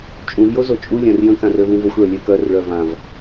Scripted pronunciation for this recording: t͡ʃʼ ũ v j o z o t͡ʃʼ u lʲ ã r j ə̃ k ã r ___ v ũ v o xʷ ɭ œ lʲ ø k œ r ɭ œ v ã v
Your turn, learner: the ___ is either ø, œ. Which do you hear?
ø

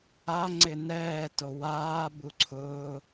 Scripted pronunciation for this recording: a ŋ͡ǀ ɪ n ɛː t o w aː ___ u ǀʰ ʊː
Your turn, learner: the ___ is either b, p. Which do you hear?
b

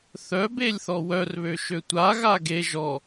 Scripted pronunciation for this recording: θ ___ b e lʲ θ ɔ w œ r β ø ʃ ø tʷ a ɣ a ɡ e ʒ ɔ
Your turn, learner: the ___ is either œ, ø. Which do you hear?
œ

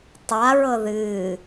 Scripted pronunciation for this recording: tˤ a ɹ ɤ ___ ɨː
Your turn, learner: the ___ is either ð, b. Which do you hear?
ð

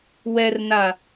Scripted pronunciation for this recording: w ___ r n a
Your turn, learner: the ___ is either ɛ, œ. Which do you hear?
ɛ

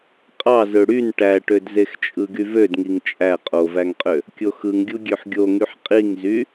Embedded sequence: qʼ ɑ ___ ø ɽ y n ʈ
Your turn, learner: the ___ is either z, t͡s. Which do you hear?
z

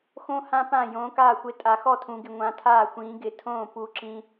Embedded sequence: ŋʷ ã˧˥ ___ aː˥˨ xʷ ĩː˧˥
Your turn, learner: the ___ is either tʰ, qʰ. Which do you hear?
tʰ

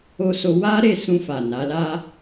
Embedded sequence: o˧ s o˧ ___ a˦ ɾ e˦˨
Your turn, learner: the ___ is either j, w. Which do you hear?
w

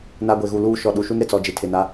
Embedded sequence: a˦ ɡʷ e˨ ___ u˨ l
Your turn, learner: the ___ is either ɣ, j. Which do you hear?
ɣ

